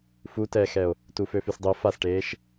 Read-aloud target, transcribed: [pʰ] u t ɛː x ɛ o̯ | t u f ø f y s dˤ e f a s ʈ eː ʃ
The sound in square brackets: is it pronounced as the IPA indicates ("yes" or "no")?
no